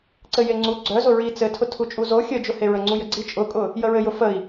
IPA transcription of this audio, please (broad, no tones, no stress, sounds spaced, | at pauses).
ǀ ɘ j e ŋ͡ǀ u ɡ͡ǀ œ z ʊ ɹ i t͡s ɘ tʰ ʊ tʰ u t͡ʃʼ u z o xʲ ə d͡ʒ ʊ h e ɹ ə ŋ͡ǀ u j ə ɡ͡ǀ i t͡ʃʼ ʊ kʼ ʊ | j ə ɹ ɘ j ʊ f ə i̯